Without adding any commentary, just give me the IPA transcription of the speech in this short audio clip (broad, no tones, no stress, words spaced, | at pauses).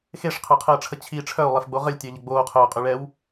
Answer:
xeʂqʰœqʰəːʈ͡ʂʰə t͡ɕʰi ʈ͡ʂʰœu̯lˠefɡ͡bo ʁəlʲtʲœʎə ɡ͡boːqʰœːqʼyɭɛːw